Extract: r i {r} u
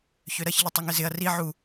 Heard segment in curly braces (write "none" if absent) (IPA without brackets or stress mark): ʕ